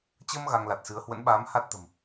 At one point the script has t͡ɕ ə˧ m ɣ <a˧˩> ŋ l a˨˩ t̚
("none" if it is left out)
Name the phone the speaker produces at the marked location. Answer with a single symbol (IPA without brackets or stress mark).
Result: a˧